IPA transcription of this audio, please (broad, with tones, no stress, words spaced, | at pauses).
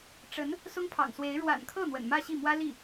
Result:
ʈ͡ʂə˧˥n | sʊ˥ŋpʰɑ̰˨˩ŋswe˧˥ɪ̯ ɻwa̰˨˩nkʰɤ˥˩ n̪wə̰˨˩nmä˥˧ɕi˥˩mwä˥ li˥˩